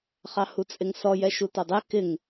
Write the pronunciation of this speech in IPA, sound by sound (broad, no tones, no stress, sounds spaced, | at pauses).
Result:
χ ɑ h u t͡sʼ ɪ ŋ s ɔ j ɛ ʃ u t ɔ dˤ ɛ k ɪ ŋ